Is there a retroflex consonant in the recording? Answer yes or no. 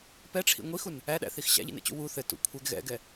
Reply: yes